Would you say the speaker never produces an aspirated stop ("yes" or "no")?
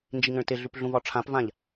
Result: no